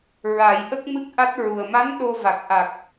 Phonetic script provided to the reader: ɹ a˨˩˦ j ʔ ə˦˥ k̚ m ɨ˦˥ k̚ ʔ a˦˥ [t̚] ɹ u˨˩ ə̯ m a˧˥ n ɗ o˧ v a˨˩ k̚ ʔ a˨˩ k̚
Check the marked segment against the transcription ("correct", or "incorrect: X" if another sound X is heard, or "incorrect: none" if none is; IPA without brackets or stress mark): correct